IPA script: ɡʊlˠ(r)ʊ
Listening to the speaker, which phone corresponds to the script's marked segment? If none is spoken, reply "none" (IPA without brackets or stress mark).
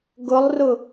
r